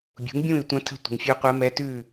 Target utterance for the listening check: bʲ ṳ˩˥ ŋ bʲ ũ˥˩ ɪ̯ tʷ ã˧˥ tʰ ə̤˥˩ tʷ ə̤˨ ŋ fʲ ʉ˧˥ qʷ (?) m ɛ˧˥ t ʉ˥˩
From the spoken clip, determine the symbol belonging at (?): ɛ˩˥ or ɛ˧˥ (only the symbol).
ɛ˧˥